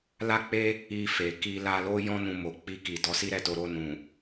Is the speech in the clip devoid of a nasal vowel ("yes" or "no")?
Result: no